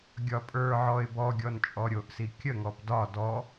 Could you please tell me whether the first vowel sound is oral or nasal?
oral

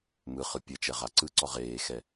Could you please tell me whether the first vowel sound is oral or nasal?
oral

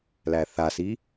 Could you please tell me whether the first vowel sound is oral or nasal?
oral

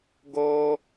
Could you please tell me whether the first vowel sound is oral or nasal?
oral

